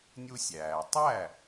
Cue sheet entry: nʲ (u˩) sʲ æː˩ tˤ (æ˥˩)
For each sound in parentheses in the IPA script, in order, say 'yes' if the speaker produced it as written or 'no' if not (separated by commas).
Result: no, yes